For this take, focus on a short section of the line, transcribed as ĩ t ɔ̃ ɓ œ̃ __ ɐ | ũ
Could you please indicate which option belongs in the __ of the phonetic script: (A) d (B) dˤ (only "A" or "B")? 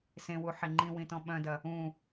A